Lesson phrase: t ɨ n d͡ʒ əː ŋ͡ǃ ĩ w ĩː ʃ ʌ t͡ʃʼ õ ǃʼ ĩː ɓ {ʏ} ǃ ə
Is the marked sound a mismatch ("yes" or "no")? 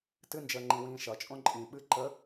yes